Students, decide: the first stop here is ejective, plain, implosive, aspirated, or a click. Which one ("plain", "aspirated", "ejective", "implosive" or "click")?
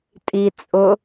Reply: ejective